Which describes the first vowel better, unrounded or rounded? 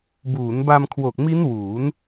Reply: rounded